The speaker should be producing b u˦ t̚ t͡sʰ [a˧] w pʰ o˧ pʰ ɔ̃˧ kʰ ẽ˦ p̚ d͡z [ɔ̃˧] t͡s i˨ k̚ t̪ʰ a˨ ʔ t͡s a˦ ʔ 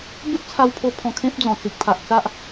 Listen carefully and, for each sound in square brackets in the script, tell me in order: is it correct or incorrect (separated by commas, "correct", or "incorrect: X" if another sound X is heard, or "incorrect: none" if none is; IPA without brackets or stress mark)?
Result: correct, incorrect: ɔ̃˨˩